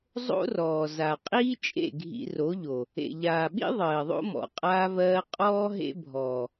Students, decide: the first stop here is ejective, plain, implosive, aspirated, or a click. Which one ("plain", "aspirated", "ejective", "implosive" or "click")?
ejective